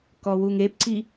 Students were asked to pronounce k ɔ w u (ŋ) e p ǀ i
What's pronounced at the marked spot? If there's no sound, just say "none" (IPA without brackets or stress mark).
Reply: ŋ